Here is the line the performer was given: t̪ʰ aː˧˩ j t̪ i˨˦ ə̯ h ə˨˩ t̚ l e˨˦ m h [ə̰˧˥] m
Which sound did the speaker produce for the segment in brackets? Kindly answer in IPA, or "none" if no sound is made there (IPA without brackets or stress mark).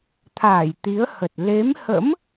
ə̰˧˥